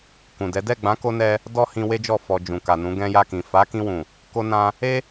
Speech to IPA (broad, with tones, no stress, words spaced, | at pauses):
kũ˨dɛ˨˦ dɛ˦˨ɡ͡bã˨˦ko˧nɛ˧ | dɔ˦hĩ˧ we˦d͡ʒɔ˦˨ fɔ˨ d͡ʒũ˨ka˨nũ˨˦ ɡɛ̃˧ja˧kĩ˨ fa˨˦kĩ˧wũ˨ | ko˧nã˧ | e˦